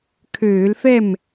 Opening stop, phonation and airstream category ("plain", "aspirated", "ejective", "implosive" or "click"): aspirated